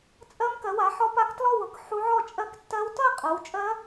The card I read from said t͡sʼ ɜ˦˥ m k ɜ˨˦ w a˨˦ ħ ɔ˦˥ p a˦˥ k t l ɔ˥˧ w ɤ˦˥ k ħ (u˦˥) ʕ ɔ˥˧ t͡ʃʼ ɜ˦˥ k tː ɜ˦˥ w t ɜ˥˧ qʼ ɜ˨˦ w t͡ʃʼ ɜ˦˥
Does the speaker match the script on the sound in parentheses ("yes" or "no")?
yes